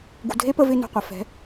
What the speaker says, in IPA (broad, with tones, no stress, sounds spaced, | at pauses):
ɡ ṳ˨ dʱ e˦ p ə˧ v ɪ˧ n o̤˨ qʷ ɐ˨ f ɛ̤˨˦